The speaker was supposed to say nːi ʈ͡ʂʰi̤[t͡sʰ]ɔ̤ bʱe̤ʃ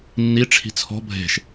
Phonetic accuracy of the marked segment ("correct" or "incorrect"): correct